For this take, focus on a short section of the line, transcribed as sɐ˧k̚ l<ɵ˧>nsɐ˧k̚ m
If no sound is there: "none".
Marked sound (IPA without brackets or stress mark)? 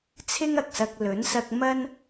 ɵ˨˥